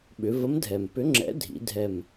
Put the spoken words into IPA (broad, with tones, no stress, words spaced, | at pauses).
ɓʏ˩˧və˨˥mdʱɛ˩m pʏ˨˥ŋ͡ǁɛ̰˨˥dʱḭ˩˧ dʱɛ˧˩m